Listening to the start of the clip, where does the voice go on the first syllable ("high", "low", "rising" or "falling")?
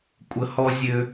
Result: high